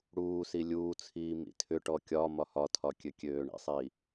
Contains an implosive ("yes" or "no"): no